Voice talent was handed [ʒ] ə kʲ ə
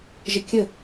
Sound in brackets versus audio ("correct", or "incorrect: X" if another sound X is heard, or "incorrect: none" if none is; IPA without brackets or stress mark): correct